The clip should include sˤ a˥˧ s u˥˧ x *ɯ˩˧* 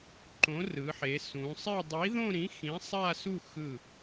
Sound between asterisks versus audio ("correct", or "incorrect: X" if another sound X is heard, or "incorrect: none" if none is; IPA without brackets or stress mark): incorrect: ɯ˧˩